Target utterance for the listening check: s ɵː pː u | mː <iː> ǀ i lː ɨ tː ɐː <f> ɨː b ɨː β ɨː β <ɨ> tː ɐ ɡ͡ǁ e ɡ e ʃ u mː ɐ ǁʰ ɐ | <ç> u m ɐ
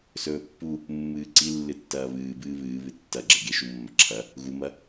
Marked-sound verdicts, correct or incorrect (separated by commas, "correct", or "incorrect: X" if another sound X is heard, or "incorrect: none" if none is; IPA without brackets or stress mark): incorrect: ɨː, incorrect: β, correct, incorrect: ɣ